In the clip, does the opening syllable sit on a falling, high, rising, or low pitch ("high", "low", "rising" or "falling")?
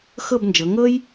falling